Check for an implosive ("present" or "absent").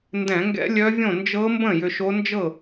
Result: absent